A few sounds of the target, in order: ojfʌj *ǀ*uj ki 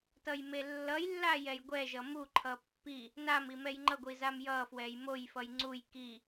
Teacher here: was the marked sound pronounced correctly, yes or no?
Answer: no